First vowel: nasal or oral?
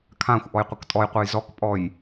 nasal